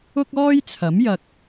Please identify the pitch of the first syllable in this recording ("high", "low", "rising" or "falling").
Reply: high